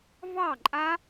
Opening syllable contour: falling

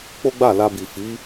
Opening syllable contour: high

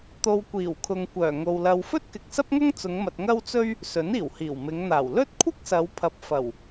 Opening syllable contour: low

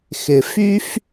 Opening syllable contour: low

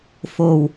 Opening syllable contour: low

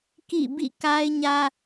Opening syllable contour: falling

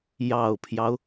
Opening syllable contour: low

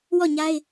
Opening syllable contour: falling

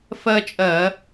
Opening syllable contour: high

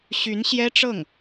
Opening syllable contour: rising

